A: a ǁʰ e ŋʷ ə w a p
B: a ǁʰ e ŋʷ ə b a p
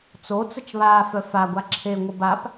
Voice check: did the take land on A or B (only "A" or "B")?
B